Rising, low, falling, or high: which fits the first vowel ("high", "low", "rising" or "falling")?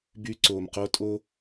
high